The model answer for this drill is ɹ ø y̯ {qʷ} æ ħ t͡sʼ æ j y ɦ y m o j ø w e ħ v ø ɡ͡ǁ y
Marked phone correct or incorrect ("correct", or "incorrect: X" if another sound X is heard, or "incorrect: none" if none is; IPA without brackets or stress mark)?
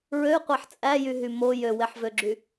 correct